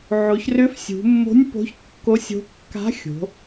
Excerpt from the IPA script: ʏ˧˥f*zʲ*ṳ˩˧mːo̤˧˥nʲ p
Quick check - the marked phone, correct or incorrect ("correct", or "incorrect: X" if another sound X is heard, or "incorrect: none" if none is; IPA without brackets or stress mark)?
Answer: incorrect: sʲ